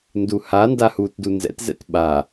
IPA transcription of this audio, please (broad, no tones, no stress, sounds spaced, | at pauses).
n d u h a n d a h u t d u n z ɛ̰ t z ɛ̰ t ɓ a